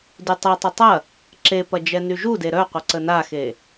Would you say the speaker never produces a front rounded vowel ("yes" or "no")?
no